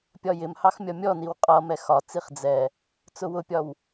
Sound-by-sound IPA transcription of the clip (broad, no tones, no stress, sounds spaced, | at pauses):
pʲ ɒ j ɪ m h ɑ x mʲ ɒ mʲ ɔ n i w qʼ ʌ m ɛ x ɒ t͡s i χ d͡z ɛ | t͡s ʊ w ʊ pʲ ɒ w